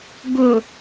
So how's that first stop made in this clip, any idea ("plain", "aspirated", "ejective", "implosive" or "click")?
plain